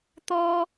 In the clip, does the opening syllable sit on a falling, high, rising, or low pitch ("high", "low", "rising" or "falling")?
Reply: high